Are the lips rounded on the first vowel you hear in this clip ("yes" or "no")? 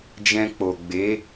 no